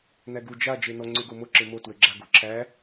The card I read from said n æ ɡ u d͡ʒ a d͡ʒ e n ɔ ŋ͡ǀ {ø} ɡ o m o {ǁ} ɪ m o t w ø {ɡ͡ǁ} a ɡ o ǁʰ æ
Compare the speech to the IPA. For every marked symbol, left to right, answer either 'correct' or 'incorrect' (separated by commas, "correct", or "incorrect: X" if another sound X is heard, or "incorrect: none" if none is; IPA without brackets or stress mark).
correct, correct, correct